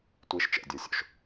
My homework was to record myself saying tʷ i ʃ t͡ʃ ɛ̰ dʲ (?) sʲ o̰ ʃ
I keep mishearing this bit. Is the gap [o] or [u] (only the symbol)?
o